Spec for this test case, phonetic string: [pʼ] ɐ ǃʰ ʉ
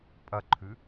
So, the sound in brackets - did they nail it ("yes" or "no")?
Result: yes